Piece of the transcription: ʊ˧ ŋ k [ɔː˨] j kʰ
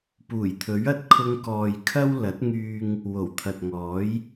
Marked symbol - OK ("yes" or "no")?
yes